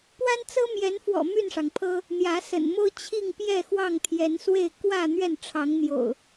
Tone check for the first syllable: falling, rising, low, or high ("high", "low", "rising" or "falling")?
high